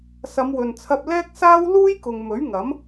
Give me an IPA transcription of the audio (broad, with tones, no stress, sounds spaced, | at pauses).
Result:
s ɐ˨˧ m w ɵ˨ n t͡sʰ ɐ˧ p̚ l ɛː˥ k̚ s aː˥ w l uː˥ j k ʊ˨ ŋ m ɵ˨˥ ɥ ŋ ɐ˨˥ m